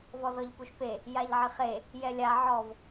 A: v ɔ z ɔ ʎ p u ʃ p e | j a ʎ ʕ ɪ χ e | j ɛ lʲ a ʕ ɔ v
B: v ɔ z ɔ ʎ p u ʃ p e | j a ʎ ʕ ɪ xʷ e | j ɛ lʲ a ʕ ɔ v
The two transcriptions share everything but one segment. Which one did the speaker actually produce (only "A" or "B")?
A